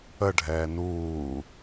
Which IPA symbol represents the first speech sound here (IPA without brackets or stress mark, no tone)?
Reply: ə